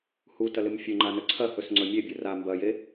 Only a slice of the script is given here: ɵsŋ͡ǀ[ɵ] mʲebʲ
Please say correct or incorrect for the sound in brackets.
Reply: correct